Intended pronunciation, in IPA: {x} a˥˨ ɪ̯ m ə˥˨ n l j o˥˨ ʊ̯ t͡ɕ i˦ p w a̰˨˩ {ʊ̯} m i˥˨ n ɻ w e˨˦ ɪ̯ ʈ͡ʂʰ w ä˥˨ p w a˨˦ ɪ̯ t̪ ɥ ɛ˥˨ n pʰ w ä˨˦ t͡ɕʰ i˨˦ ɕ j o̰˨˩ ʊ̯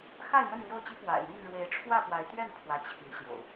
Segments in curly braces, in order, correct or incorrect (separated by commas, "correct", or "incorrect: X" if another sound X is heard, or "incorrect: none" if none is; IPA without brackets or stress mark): correct, incorrect: ɪ̯